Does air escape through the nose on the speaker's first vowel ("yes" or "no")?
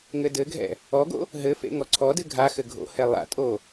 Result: no